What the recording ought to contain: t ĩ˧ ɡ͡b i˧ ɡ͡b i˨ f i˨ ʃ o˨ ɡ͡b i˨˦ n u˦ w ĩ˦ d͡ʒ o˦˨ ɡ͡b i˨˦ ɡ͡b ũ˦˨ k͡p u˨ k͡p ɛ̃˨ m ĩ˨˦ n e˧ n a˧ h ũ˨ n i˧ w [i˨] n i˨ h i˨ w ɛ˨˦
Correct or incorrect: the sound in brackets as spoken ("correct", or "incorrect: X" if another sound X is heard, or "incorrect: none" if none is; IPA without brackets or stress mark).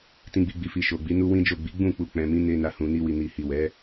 correct